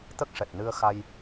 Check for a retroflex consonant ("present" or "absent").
present